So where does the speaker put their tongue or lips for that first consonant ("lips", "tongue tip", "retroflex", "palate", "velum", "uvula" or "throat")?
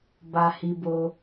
lips